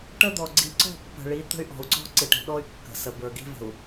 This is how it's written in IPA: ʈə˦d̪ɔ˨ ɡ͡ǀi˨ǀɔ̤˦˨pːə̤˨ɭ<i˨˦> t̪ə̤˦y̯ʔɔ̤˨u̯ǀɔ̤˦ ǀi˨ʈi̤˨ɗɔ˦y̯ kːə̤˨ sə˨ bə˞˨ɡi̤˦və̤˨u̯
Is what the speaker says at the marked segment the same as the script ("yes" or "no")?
yes